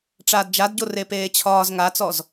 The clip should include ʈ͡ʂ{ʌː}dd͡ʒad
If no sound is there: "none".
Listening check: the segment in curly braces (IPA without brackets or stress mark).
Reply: aː